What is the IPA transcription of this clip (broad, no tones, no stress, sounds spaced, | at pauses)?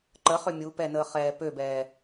ǃ ə χ ʏ mʲ u p ɛ n əː χ ɛː p ø b ɛː